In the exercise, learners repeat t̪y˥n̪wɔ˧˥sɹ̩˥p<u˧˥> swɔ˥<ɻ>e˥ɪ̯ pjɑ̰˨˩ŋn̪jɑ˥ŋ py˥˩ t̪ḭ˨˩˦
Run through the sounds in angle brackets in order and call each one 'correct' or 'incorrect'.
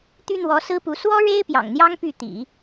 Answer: correct, correct

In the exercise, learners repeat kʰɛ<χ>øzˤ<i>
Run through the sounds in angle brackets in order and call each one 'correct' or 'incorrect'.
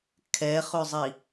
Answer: correct, correct

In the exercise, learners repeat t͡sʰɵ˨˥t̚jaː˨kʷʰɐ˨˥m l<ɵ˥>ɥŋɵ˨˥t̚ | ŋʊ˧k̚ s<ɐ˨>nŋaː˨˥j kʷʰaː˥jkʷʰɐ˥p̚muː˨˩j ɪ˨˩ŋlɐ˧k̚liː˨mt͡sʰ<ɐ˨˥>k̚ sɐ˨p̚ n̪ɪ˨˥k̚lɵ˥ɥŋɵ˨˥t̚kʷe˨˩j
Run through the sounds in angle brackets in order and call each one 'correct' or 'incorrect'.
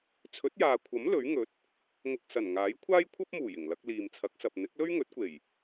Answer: incorrect, incorrect, correct

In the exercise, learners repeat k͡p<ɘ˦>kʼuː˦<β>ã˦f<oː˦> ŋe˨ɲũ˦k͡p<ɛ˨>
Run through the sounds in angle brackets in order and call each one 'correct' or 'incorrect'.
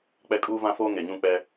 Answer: incorrect, incorrect, correct, incorrect

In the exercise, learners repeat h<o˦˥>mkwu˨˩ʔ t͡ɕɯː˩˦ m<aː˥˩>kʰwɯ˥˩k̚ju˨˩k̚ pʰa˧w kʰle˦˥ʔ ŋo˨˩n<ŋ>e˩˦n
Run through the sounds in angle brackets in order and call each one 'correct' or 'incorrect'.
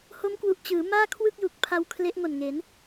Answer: correct, correct, correct

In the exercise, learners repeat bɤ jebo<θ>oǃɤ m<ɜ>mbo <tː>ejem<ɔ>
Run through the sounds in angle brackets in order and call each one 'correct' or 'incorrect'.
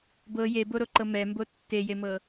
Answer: incorrect, incorrect, correct, incorrect

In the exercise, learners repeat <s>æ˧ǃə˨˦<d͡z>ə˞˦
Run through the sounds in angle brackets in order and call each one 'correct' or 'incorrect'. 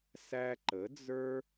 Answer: correct, correct

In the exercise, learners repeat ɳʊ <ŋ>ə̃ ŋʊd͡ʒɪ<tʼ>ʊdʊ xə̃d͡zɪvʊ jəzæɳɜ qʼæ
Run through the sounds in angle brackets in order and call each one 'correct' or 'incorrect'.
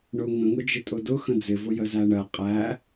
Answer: correct, correct

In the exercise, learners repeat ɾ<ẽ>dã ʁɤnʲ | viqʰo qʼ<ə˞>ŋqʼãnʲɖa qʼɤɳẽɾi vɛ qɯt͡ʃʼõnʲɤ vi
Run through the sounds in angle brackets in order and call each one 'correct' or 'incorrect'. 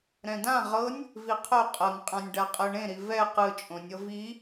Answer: incorrect, incorrect

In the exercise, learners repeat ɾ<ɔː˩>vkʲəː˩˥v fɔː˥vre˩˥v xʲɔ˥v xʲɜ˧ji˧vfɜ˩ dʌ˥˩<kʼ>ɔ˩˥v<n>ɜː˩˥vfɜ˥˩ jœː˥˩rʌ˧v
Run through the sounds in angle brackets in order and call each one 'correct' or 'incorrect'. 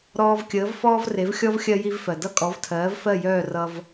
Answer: incorrect, correct, incorrect

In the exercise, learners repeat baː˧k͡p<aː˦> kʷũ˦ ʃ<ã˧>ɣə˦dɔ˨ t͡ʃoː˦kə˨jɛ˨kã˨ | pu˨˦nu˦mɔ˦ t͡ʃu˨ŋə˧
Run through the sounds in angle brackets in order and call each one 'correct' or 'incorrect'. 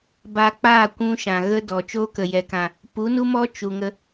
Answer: incorrect, incorrect

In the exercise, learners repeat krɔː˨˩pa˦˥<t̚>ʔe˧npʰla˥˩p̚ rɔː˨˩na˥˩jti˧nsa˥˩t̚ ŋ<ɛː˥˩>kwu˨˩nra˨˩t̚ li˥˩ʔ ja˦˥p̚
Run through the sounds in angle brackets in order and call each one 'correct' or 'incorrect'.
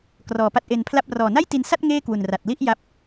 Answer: correct, incorrect

